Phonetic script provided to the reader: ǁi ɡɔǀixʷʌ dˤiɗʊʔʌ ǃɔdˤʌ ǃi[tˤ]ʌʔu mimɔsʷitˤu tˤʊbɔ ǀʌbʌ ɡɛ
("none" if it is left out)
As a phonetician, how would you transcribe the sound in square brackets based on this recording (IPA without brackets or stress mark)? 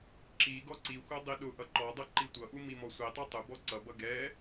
tʷ